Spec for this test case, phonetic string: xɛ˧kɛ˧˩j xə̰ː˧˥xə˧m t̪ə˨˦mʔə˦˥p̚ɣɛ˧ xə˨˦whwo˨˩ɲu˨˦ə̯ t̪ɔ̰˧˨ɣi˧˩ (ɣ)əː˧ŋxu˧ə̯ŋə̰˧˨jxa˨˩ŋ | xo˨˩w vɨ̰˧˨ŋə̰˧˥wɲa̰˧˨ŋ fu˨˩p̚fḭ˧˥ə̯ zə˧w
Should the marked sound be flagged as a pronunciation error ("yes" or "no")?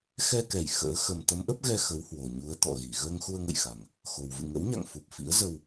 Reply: no